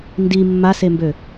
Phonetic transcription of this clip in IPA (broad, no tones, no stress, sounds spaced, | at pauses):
n d i mː a s e m b ø